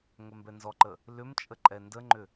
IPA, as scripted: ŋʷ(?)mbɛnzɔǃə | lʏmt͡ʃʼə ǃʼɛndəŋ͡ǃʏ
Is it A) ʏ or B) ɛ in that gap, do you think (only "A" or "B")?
B